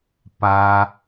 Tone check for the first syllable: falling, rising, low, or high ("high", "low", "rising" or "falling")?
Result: low